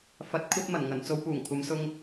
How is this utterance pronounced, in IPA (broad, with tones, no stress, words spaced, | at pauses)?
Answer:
fɐ˨˥t̚ kʷʰɐ˥t̚mɐ˨˩nŋɐ˨˩n t͡so˧wpuː˨˩ŋkʷʰɐ˨˧msʊ˧ŋ